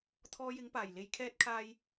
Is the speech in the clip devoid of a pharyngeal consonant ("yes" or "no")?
yes